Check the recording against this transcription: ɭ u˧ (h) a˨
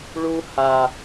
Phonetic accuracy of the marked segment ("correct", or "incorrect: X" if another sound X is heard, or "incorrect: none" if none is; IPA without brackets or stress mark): correct